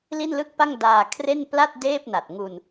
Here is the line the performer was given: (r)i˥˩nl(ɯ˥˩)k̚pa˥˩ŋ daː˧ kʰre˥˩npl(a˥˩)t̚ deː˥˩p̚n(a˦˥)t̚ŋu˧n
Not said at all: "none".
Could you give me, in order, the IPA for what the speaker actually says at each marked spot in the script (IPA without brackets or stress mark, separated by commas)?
l, ɯ˥˩, a˥˩, a˨˩